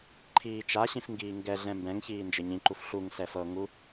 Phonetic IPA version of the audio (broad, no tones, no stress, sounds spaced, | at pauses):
ǃʰ iː t͡ʃ a ɕ ĩ f ŋ ɡ iː ŋ ɡ ɛ ɮ ɛ̃ m b ɛ̃ ŋ ç iː n d͡ʒ ɘ ɲ ĩ ǃ u f ɬ u ŋ s ɛ f ɤ ŋ u